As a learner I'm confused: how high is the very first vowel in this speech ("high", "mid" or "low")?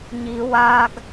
high